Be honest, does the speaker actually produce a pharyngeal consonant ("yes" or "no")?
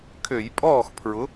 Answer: no